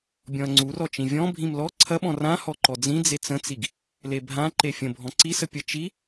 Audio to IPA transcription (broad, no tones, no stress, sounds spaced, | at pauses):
bʲ ɔ̃ ɐ̯ ŋ͡ǀ u r ɔ t͡ʃ ĩ vʲ ɔ̃ bʱ ĩ m l ɔ ǀʰ ɐ ɓ ɔ̃ r ã h ɔ ǃ ɔ d͡z ĩ d͡z e t͡s ə̃ t͡s i ɡ | l e bʱ ã ǃ e fʲ ə̃ bʱ ɔ̃ ǀ i s ə pʲ ə t͡ʃ i